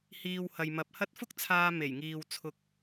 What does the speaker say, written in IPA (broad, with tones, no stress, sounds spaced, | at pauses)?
h iː˨ w h ɐ˨ j m ɐ˨˥ p̚ h ɐ˥ t̚ f ʊ˥ k̚ t͡sʰ aː˧ m e˨˩ j ŋ iː˨ w t͡sʰ ʊ˧ k̚